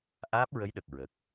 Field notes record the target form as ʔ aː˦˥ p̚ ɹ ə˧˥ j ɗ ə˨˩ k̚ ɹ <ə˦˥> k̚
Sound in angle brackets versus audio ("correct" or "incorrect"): incorrect